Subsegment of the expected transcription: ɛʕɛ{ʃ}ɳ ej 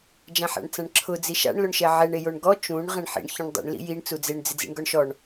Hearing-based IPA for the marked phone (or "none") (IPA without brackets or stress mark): none